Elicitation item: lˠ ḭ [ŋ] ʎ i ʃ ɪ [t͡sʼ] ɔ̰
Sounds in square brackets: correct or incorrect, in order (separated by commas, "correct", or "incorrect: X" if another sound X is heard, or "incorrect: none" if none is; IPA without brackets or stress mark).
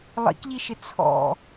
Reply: incorrect: k, incorrect: t͡sʰ